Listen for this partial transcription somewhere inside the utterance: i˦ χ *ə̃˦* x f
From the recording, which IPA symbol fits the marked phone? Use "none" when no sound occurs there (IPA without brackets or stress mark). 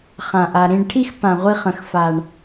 ə̃˦